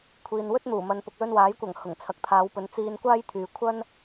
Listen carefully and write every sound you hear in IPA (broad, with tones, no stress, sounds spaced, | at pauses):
kʷʰ iː˨ n w ɵ˥ t̚ n̪ uː˨˩ m ɐ˨ n p ʊ˨ k̚ l ɵ˧ n w aː˨˥ j kʷ ɐ˨˩ ŋ h ʊ˨˩ ŋ t͡sʰ ɐ˨˥ k̚ t̪ʰ aː˨˧ w p ɵ˨˧ n t͡s iː˧ n kʷ aː˥ j t̪ʰ yː˨ kʷʰ ɐ˥ n